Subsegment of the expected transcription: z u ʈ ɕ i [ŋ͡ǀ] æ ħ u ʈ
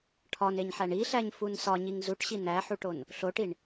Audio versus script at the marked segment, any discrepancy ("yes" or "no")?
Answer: yes